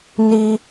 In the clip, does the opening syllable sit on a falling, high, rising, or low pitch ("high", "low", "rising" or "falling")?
high